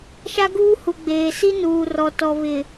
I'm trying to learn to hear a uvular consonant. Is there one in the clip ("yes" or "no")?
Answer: no